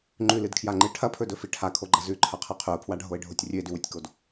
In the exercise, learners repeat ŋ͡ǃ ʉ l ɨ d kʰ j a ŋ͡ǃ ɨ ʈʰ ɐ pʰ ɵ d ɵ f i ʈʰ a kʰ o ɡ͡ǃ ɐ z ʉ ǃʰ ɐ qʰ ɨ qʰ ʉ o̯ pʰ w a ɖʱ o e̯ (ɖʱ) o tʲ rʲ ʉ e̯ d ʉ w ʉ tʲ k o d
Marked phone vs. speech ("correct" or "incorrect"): correct